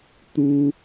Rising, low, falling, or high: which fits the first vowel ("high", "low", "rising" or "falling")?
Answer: high